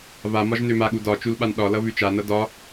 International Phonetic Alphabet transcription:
βamɒʒ nømaɠu dɒ t͡ʃulɓanɗɒlʌ βʉt͡ʃanʌ dɒ

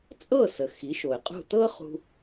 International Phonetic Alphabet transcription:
t͡sʼɤ˥˩sə˩ xi˩˥ʃo˩ɪ̯qʼṳ˥˩ tɤ˥χṳ˧

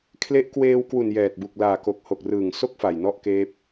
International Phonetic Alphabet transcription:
kʰle˦˥ʔ kweː˧wkwu˨˩n jɛː˨˩t̚bu˨˩k̚ laː˨˩ko˨˩k̚ho˨˩k̚ rɯː˨˩ŋso˥˩k̚ fa˨˩jnɔ˥˩ʔkeː˦˥p̚

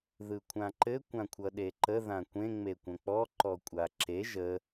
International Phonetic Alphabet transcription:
ðɯkʷʰãǃɘ kʷãkʷʰʌɗeǃə ðãkʷẽ ŋ͡mekʷə̃k͡pɔ ǃɔkʷʼaǁe ʒə

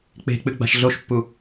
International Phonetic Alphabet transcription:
k͡pe̤k͡pɨ ɡ͡ba̤ʃɮoʃpːu

